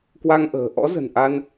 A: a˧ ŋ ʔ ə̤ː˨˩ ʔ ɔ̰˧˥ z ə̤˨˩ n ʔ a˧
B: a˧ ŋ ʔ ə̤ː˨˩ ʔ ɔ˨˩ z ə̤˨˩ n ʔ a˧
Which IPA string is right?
A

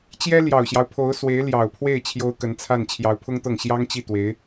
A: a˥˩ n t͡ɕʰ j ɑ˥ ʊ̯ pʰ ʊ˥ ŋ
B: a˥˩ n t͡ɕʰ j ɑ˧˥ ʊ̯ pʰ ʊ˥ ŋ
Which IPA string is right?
B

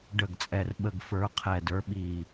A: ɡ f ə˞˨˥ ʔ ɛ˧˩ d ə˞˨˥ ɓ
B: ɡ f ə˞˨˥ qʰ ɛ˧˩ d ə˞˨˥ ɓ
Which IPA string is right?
B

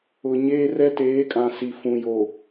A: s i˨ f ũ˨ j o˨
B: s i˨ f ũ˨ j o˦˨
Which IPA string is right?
A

